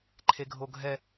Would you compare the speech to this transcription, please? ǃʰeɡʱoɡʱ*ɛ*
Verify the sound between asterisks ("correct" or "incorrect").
correct